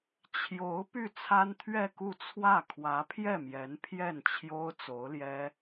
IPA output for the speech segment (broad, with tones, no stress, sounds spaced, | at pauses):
t͡ɕʰ j o˧˥ ʊ̯ p y˥˩ t͡sʰ a˥ n t̪ʰ ɥ ɛ˥˧ k u˥˧ t͡sʰ w ä˥˩ kʰ w ä˧˥ pʰ j ɛ˥˩ m j ɛ˧˥ n pʰ j ɛ˥˩ n t͡ɕʰ j o˥ ʊ̯ t͡s o˧˥ ʊ̯ l j ɛ˥